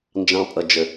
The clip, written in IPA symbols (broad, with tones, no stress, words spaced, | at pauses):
nd͡ʒɑ̃˧pʼʌ˨d͡ʒə˨